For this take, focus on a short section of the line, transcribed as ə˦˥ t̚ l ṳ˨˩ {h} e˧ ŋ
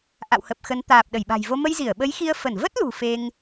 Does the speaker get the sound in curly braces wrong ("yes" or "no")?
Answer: yes